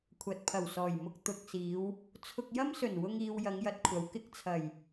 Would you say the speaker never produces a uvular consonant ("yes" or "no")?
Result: yes